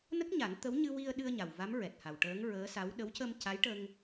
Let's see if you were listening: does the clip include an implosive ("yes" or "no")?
yes